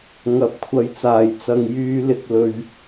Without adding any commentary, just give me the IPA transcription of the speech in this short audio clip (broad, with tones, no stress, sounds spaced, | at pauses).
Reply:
ŋ ɐ˨˥ p̚ kʷʰ ɐ˨˧ j t͡s aː˨˩ j t͡s ɐ˨ ŋ j yː˧ l ɪ˨ k̚ l ɵ˨ ɥ